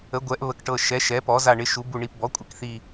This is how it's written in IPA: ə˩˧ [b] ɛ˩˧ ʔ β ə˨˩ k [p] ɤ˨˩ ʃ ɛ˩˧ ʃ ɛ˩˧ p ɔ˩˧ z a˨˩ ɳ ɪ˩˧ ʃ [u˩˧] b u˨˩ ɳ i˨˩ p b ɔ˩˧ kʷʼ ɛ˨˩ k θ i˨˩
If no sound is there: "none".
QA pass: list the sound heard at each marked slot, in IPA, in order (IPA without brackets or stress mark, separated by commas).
ɡʷ, ʈ, u˩˧